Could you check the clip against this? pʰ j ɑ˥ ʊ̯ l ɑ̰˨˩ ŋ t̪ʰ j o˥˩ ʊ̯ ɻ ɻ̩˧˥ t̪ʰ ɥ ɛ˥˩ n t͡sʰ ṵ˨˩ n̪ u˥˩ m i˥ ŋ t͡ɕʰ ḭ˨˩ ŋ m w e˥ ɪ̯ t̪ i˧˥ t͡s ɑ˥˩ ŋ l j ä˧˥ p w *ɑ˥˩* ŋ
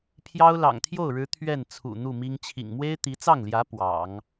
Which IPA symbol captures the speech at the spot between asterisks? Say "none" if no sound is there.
ɑ̰˨˩˦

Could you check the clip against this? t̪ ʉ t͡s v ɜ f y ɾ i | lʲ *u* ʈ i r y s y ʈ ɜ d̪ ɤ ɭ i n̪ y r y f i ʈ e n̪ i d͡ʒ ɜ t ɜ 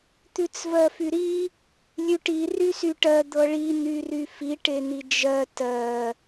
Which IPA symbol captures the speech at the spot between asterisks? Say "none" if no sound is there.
ʉ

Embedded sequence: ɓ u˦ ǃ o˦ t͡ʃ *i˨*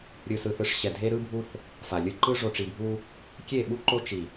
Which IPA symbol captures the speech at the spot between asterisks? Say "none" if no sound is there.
i˨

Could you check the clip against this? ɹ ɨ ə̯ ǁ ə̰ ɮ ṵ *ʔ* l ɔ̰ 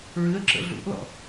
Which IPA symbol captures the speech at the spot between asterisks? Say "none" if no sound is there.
ʔ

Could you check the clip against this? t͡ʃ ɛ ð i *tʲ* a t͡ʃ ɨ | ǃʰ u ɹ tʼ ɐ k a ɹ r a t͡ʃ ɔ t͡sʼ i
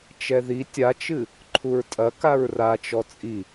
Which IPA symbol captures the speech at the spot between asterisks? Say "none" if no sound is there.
tʲ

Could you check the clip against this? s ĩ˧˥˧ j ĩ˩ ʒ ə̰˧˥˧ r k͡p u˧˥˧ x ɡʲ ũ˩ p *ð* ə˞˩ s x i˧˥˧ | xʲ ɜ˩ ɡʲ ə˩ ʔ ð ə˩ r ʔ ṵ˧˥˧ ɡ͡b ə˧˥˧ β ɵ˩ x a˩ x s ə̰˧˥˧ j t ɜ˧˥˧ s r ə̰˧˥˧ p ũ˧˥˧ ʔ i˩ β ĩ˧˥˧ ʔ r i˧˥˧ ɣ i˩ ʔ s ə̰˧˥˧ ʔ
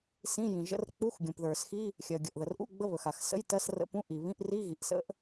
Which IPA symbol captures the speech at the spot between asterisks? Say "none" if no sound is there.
ð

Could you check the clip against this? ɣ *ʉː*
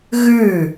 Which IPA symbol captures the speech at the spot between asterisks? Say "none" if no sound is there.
ʉ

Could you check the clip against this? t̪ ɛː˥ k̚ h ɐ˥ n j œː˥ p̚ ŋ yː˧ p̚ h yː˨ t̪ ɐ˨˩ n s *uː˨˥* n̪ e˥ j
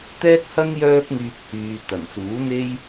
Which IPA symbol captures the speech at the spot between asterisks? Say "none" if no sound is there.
uː˨˥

